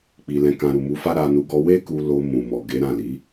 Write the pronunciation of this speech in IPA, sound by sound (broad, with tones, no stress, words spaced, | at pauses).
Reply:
k͡pi˧lɛ̃˧kã˧ ɾu˨mu˨˦fa˦ ɾa˧nu˧ ɡɔ˦ we˦ku˧ lo˧ mũ˨mɔ˨ ɡe˨˦ɾã˦˨li˨˦